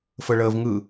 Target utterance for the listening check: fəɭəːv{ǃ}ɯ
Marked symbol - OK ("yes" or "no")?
no